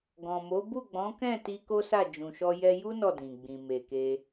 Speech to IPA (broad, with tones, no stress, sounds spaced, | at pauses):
ɡ ɔ̃˨ m o˨˦ b u˦˨ ɡ͡b ɔ̃˨˦ k ɛ̃˦˨ t i˧ k o˦ s a˦˨ d͡ʒ ũ˨ ʃ ɔ˧ j ɛ˧ j u˦ n ɔ˦˨ d ĩ˨ ɡ͡b ĩ˨ m e˨ k e˧